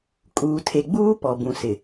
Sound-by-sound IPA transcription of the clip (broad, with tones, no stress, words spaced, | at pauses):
kʼuː˨tʰe˨ɡ͡buː˦ pɔ˨bũ˨sɪ˨